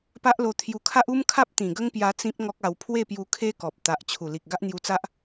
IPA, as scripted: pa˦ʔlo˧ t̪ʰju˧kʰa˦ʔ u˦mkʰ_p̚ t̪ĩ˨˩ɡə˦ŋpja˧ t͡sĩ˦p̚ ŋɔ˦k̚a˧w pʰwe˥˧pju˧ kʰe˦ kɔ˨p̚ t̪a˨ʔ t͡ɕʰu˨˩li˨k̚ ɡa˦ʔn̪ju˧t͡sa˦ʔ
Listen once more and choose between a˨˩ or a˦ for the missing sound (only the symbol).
a˦